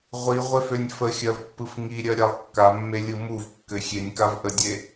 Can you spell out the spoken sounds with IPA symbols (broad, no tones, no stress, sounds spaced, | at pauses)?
ʁʷ i ʁʷ e f ø nʲ f ə xʲ ɜ v pː ɯ f ŋ i ɾʲ ɜ ɾʲ a lˠ kː a mː e lʲ ɯ m u v kː ɘ xʲ e nʲ k a v ʔ ə dʲ e